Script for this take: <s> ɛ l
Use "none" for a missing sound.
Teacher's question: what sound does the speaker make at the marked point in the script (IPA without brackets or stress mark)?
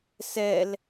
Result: s